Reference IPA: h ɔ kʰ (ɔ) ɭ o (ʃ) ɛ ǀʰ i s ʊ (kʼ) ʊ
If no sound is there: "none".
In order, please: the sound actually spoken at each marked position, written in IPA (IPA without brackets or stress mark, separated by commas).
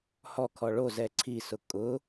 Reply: ɔ, z, kʼ